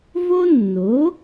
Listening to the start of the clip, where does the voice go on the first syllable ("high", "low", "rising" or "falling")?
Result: high